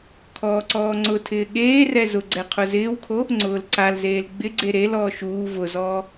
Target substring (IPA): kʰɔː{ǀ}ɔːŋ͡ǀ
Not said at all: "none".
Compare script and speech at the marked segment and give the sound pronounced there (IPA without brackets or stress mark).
ǀ